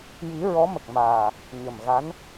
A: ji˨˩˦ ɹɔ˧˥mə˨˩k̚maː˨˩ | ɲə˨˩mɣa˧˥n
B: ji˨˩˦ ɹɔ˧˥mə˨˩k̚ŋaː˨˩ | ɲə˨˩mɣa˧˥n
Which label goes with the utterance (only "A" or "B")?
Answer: A